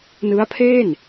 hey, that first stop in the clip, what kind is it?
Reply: aspirated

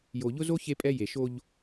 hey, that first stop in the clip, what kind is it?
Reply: ejective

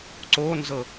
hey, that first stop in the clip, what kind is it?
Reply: click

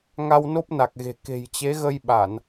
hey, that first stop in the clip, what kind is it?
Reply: plain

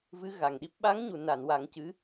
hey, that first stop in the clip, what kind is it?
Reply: implosive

